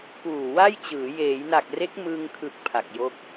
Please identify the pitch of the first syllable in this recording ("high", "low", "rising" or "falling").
low